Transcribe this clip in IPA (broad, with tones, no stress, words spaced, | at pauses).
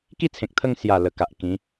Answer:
ki˥˧ t͡sʰẽ˨k̚t̪ʰə˥˧ŋ sja˨˩ lə˨˩ka˨ʔkĩ˨˦